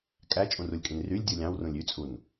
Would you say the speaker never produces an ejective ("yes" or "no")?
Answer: no